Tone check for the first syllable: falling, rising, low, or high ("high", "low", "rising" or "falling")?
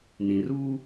low